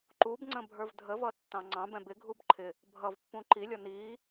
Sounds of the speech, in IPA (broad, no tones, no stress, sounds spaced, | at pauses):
ǃ u b ŋ͡ǀ ə̃ bʱ ə˞ v dʱ ə v ʌ tː ɑ̃ ŋ͡ǀ ɑ̃ b ɛ̃ b ɪ ɡʱ u b ǃʰ ɪ | bʱ ʌ v pː ũ ǃ i lʲ ɔ n iː